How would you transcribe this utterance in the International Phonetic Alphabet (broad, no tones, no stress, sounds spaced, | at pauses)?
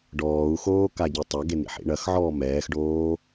ɖ ɔː u̯ x oː k a ɟ e tˤ ɐ ɡ e n ḭ ħ ḭ ɳ ɐ x ʕ ɔː m ɛː x ɖ oː